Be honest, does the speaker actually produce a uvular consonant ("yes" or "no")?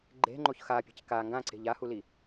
no